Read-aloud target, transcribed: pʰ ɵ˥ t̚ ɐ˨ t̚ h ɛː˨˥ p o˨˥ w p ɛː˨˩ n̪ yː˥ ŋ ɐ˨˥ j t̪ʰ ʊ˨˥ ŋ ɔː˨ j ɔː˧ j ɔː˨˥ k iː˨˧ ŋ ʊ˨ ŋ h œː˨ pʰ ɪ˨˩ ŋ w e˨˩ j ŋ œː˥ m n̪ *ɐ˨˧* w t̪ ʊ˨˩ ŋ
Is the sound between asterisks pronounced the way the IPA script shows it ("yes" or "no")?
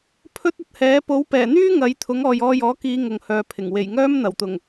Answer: no